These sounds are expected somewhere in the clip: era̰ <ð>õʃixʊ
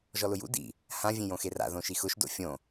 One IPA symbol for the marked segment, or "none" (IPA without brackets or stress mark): ð